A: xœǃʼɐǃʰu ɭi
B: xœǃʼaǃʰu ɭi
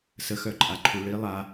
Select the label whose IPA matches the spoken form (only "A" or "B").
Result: B